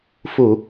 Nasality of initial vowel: oral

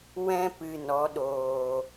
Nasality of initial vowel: nasal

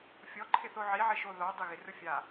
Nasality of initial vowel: oral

